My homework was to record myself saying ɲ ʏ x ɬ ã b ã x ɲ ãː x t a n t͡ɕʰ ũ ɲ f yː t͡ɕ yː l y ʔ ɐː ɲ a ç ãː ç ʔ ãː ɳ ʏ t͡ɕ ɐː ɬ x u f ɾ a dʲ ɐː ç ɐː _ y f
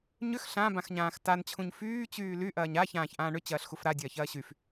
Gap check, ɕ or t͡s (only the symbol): ɕ